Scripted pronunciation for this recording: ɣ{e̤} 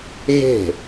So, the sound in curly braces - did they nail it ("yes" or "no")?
yes